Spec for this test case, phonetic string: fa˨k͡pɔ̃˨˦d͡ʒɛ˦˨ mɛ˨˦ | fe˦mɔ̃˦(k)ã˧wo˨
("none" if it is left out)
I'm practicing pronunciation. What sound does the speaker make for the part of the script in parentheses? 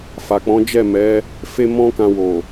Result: k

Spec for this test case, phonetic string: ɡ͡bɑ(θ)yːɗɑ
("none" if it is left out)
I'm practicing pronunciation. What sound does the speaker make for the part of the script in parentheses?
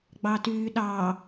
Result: t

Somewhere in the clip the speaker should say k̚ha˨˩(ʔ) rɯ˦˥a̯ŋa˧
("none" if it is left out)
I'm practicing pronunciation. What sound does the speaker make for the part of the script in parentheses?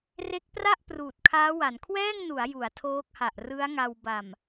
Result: ʔ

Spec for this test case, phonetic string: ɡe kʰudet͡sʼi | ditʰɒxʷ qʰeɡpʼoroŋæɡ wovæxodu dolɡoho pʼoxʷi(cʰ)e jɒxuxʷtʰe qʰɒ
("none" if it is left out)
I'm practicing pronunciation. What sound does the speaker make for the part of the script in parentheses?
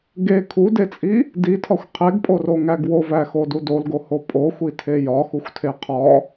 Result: tʰ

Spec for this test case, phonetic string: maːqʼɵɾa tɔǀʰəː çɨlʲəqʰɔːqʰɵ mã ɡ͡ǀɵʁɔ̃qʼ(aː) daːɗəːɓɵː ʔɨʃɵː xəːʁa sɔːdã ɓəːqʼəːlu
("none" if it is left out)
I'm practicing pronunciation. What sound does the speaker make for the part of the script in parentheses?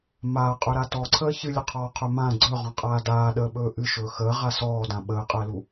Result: aː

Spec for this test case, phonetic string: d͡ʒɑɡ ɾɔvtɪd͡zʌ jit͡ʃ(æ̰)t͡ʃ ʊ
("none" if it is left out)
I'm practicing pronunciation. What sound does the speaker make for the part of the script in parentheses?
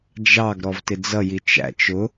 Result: æ̰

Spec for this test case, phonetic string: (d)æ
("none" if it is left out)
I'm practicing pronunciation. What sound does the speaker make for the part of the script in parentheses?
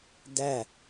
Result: d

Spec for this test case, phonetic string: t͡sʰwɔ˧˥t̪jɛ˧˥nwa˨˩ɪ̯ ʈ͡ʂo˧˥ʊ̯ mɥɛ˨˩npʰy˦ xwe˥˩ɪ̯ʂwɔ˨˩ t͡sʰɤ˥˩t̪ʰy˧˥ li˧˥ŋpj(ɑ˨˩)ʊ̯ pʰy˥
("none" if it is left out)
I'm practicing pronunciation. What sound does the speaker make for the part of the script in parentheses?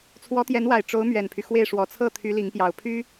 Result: ɑ˨˩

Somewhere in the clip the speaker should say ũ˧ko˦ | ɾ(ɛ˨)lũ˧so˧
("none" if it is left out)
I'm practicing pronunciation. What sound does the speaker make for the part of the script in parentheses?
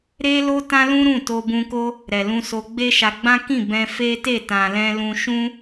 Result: ɛ˨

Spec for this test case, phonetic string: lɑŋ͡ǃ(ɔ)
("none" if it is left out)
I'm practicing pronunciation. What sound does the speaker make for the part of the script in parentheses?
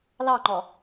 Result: ɔ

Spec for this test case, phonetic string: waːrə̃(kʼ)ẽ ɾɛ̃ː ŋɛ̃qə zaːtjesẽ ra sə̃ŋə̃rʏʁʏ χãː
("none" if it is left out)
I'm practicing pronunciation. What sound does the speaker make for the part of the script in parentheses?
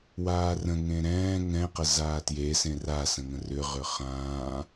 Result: ŋ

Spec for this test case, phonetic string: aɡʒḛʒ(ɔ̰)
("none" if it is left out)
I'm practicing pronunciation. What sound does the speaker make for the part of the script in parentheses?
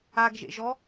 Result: ɔ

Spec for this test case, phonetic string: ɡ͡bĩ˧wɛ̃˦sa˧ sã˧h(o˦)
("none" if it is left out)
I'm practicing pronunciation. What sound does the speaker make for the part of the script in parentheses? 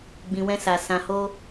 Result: o˦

